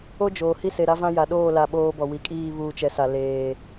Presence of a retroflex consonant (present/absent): absent